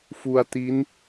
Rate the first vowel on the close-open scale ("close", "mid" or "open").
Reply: close